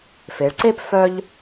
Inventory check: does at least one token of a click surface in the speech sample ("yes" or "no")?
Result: yes